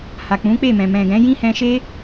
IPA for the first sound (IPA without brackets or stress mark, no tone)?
h